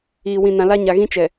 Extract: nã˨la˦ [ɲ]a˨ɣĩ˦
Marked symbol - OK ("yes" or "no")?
yes